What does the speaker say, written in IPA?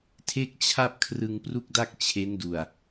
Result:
tʰe˥˩k̚t͡ɕʰa˥˩p̚ kʰrɯ˧ŋpru˥˩k̚da˥˩k̚ t͡ɕʰe˦˥ndu˨˩a̯

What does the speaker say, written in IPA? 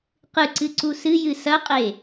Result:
qɨǀɨǀu sɨjɨ sɐqʼe

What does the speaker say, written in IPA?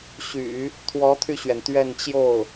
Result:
ɕy̰˨˩˦ | t̪ʰwɔ˧˥t̪ʰy˧ɕɥɛ˩n t̪ɥɛ˥˧nt͡ɕjo˥˩ʊ̯

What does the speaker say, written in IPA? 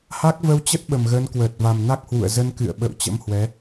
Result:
ha˦˥k̚və˧wt͡ɕə˦˥t̚ ɓə˨˩mɣəː˨˦nkwəː˨˩t̚va˨˩m na˦˥k̚hwṵ˧˨ə̯zə˧n kɨ̰˧˨ə̯ɓə̰˧˨w t͡ɕə̰˧˥mhwɛ˨˦

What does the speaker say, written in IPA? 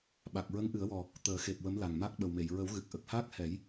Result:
ɓa˨˩k̚ɹə˧˥ŋʔɨ˨˩˦ə̯wɔ˨˩ | t̪əː˨˩˦xe˨˩p̚ wə˧˥mla˨˩ŋ ma˦˥k̚ɓə˨˩wme˨˩˨j ɹə˨˩˦wɣɨ˨˩k̚ ʔə˨˩k̚haː˦˥k̚hɛ˨˩˦j

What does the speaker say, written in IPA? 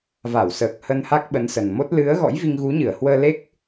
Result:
va˧˩wsəː˨˩k̚ hə˧n ha˦˥k̚ɓə˨˦nsə˨˩nmo˦˥t̚ lɨ˨˦ə̯ ɣɔ̰˧˥jvi˧ŋɣu˨˦ɲɨ˧˩ə̯ hwəː˧le˦˥k̚

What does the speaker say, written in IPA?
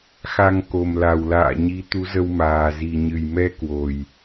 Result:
xa˨˩ŋ ko˨˩mla˨˩wla̰ː˧˨ɲi˨˦ t̪u˨˦zə˧wmaː˨˩ zi˨˩ɲɨ˨˩jmɛ˧ kwo˨˩j

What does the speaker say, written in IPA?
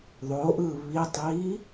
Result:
ðˤoʔɯ βitˤiː

